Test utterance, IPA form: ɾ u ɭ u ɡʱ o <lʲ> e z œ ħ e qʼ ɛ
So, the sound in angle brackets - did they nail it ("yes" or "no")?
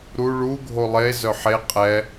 no